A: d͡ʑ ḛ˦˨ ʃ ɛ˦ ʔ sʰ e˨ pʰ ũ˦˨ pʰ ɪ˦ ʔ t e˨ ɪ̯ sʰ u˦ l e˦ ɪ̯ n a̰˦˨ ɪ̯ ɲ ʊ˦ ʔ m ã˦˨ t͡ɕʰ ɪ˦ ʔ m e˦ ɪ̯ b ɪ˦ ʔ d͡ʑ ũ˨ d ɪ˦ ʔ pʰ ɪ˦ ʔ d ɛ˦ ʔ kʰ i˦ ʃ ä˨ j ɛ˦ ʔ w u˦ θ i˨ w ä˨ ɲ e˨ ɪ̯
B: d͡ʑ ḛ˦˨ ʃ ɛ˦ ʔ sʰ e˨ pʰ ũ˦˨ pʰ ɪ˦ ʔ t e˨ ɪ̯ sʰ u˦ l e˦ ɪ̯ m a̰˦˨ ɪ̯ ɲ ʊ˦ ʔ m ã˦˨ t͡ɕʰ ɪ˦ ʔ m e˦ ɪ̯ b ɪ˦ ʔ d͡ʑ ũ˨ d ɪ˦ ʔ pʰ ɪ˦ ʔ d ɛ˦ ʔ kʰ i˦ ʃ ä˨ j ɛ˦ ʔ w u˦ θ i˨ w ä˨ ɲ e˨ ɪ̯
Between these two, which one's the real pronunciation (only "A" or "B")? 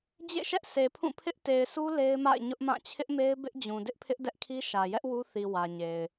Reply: B